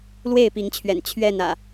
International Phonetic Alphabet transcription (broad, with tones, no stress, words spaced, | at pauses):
lwe˥˨ɪ̯pi˨˦ŋt͡ɕʰɥɛ̰˨˩n t͡ɕʰɥɛ˥˨n ä̰˨˩